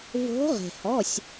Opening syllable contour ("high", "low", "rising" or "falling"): rising